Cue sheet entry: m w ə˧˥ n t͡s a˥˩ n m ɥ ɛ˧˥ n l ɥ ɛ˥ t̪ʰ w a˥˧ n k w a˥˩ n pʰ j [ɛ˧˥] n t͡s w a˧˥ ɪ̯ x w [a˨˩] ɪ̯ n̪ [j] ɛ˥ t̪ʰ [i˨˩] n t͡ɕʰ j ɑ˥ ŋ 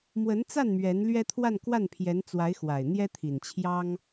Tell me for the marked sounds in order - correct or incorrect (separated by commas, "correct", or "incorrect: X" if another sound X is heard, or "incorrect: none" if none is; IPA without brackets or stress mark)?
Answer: correct, correct, correct, correct